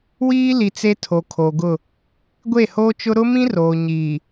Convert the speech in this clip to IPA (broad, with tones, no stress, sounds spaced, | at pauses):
w iː˦ l i˨ t͡s e˦ tʰ o˨ kʰ o˨ ɡ ʊ˦˨ | ɡʷ e˦˨ h oː˦ t͡ʃ ʊ˦ ɾ ʊ˦ m ĩ˦ r oː˨ ɲ iː˨